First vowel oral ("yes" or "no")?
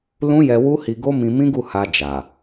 no